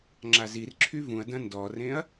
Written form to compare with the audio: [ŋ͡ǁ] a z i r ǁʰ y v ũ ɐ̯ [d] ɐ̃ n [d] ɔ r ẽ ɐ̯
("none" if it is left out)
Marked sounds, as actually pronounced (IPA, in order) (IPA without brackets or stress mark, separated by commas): ŋ͡ǁ, d, d